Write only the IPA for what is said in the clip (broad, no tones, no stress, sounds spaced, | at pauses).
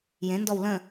j ẽ n d ɔ w l ə̃